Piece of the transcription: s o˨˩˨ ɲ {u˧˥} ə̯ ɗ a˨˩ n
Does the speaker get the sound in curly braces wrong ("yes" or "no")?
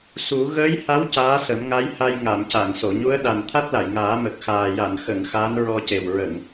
no